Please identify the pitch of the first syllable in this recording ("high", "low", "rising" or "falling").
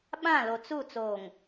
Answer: falling